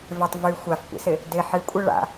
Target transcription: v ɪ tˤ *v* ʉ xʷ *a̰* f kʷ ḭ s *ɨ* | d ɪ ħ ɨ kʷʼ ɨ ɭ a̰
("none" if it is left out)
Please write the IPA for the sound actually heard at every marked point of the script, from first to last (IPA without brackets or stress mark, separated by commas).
v, a, ɪ